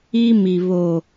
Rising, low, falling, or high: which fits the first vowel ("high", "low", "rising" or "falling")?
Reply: high